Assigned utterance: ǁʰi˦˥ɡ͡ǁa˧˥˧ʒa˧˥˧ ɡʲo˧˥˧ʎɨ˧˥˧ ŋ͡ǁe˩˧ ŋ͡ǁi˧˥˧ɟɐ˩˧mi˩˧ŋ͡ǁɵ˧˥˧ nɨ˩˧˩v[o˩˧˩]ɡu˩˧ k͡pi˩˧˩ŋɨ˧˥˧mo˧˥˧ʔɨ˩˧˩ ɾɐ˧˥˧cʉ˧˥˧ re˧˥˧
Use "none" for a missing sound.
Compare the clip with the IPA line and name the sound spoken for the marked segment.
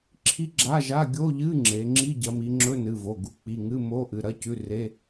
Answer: o˩˧˩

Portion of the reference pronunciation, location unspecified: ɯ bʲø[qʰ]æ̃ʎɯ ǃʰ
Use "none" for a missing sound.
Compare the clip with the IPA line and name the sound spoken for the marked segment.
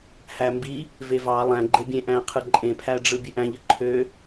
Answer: ʔ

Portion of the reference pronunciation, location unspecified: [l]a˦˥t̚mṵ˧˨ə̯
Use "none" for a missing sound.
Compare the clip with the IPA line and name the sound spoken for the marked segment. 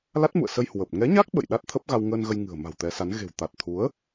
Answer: l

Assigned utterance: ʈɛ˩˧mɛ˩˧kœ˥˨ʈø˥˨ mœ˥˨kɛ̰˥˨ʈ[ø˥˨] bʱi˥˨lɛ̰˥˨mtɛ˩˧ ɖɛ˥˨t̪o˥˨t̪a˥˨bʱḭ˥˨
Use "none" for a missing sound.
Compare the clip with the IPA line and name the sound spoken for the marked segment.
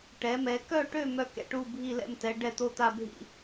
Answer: u˥˨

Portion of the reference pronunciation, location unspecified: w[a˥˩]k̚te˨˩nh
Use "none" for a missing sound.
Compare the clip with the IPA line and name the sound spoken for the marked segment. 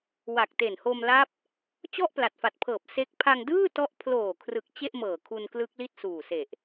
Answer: a˨˩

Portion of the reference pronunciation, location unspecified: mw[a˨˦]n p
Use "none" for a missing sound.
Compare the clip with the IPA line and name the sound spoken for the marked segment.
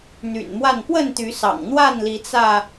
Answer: a˥˨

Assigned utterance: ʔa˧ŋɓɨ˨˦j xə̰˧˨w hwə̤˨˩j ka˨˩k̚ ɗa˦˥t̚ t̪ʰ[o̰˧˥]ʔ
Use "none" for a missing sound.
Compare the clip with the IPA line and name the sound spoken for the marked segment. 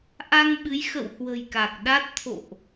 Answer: o̰˧˨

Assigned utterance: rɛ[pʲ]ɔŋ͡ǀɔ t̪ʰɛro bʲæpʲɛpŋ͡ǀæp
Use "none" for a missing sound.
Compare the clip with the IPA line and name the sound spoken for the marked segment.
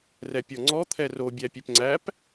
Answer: pʲ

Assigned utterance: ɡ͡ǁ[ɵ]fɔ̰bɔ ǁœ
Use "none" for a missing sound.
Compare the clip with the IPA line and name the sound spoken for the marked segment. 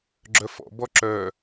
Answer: œ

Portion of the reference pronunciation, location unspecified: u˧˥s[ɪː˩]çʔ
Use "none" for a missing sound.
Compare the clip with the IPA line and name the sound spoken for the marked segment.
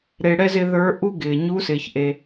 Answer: ɪː˩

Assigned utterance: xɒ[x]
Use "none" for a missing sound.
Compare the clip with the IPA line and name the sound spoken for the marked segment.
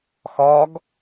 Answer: ɡ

